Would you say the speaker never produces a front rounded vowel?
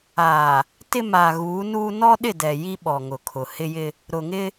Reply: yes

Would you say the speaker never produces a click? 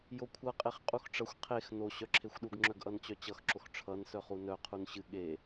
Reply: no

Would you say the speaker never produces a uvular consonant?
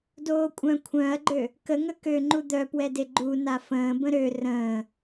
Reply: yes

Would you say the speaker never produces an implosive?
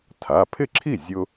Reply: yes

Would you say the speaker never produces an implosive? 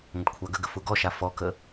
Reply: yes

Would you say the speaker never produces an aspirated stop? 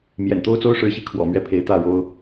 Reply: no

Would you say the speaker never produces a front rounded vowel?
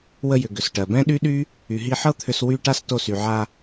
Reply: no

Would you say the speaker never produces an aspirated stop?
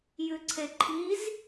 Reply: no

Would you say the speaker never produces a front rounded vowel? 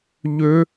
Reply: no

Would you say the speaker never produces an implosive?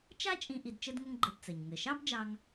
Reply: yes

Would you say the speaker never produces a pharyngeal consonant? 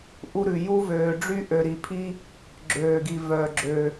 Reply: yes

